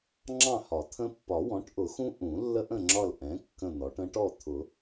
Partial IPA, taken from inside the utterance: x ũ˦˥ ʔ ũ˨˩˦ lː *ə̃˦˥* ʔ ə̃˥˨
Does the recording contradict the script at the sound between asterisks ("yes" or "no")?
yes